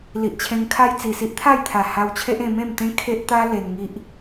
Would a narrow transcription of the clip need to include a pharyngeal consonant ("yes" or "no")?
no